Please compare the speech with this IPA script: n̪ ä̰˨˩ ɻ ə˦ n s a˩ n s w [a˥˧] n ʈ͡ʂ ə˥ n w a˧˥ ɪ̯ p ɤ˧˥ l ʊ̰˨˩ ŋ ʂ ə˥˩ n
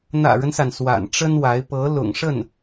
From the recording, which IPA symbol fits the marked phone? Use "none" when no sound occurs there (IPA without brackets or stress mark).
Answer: a̰˨˩